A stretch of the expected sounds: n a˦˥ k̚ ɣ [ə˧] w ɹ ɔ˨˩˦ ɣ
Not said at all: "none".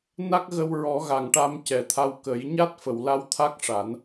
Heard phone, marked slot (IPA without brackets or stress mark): ə˧